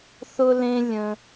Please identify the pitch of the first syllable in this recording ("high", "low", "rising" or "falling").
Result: low